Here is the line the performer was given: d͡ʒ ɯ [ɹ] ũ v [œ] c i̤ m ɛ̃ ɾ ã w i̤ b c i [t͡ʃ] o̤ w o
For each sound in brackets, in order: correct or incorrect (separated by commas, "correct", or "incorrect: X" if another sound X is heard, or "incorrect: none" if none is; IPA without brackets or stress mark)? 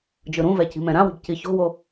incorrect: ɾ, incorrect: ɛ, incorrect: ç